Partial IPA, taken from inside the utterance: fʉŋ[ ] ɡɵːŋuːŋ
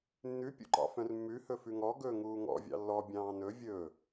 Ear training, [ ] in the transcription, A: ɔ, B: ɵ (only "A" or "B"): A